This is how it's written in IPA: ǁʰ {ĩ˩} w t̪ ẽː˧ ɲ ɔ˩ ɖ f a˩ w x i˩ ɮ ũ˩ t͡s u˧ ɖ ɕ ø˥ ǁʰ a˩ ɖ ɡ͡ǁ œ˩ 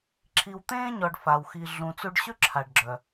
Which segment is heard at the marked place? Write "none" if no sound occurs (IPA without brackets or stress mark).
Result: i˩